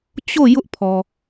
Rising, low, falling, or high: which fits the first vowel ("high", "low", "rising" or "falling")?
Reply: falling